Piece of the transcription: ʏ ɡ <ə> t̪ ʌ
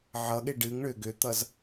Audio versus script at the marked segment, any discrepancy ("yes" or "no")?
yes